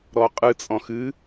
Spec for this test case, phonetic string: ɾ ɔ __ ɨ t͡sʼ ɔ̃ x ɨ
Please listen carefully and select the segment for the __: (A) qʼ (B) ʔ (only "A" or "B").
A